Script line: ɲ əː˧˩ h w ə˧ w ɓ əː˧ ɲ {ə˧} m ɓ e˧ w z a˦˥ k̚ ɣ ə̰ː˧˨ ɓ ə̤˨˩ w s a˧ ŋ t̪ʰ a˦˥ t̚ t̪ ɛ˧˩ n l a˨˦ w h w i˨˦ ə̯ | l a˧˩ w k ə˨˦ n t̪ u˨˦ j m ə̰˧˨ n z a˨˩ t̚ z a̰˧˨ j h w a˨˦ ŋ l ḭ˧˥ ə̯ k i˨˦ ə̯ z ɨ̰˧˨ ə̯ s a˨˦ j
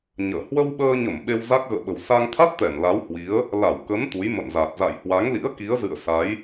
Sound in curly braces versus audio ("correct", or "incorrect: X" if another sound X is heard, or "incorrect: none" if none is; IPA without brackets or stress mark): incorrect: ə˧˩